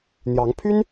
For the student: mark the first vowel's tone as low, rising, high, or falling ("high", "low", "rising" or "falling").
rising